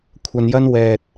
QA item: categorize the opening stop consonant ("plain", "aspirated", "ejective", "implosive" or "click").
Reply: aspirated